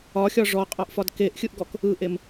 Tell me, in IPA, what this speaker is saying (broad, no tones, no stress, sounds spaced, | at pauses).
ɒ xʲ ɒ ʐ ɔ qʼ ɒ ʔ f ɒ d k e ʔ xʲ ɯ ʔ ɡ ɔ k | ɯ ʔ e m